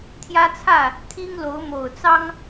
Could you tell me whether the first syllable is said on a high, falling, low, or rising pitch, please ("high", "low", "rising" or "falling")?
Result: high